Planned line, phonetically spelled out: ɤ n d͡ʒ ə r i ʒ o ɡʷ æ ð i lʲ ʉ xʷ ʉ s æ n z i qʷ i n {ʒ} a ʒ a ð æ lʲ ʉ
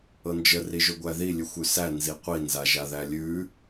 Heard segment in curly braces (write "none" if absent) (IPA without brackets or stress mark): z